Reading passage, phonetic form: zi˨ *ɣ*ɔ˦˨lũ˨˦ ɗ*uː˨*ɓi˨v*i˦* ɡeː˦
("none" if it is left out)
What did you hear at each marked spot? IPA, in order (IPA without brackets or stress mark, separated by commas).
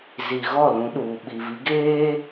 ɣ, uː˨, i˨˦